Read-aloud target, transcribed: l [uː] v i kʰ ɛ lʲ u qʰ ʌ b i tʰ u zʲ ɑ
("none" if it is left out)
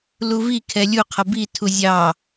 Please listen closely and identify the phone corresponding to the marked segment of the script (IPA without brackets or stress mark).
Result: u